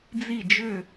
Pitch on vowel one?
falling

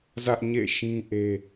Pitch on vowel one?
high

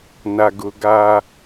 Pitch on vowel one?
low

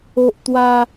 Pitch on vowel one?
high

